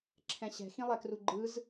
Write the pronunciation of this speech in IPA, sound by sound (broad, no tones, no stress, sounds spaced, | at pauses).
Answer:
ǁʰ ɛ̃ ɕ ɛ̤ x ĩ lˠ ɛ k r u ɡ͡ǃ ɯ z